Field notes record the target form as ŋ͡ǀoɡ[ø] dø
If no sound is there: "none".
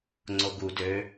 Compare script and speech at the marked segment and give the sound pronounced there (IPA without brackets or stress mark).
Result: u